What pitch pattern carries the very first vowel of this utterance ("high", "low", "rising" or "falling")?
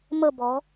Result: falling